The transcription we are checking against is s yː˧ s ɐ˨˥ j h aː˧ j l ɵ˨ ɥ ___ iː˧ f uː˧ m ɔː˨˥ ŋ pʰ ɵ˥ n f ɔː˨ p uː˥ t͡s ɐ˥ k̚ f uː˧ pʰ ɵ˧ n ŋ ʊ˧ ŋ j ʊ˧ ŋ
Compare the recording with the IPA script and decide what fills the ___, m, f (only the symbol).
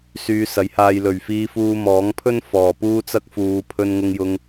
f